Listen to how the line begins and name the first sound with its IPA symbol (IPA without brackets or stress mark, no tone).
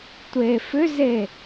tʷ